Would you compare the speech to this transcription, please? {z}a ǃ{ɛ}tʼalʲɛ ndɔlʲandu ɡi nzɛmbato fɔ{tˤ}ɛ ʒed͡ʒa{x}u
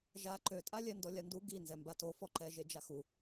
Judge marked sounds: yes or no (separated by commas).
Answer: no, no, no, yes